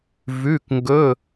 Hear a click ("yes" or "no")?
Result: no